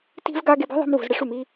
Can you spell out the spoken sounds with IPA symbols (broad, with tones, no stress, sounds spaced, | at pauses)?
t i̤˥ v ɡ a˥ ɡ e˧ b i̤˥ ðˤ i̤˧ m v ṳ˩ z ɽ ɪ˧ ʂ u˩ m i˧